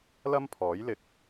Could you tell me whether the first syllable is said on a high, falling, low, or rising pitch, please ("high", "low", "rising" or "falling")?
high